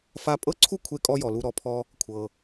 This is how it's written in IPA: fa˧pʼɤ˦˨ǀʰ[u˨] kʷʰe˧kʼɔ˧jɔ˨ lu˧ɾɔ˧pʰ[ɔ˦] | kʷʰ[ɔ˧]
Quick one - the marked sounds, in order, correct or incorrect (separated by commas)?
incorrect, correct, incorrect